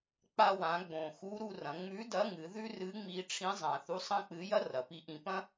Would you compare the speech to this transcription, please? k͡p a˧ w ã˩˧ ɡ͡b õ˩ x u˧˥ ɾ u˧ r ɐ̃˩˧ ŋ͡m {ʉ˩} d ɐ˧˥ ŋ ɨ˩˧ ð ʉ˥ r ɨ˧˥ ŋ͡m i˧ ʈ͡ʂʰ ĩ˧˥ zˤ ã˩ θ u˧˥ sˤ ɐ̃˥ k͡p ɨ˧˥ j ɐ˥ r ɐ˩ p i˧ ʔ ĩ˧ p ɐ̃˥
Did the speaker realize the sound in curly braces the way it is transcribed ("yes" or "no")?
no